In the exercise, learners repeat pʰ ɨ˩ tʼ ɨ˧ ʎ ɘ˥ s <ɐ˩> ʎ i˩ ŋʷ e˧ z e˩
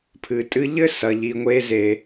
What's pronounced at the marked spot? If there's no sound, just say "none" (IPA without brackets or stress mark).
ɐ˩